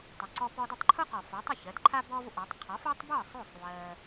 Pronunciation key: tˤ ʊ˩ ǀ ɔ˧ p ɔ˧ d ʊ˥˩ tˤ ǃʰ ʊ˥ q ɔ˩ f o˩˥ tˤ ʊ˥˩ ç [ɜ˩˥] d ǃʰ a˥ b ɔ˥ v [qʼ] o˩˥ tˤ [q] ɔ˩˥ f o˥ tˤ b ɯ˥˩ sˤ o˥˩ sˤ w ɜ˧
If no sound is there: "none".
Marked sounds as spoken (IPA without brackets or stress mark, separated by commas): ɜ˩˥, ʔ, qʰ